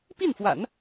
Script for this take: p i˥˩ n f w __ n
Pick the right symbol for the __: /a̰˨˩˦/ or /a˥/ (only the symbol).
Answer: a̰˨˩˦